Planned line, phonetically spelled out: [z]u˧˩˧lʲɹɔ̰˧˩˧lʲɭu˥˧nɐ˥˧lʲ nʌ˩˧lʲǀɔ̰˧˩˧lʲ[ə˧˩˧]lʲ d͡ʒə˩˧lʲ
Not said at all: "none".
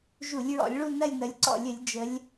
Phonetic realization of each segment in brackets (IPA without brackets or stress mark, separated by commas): ʒ, ə˧˩˧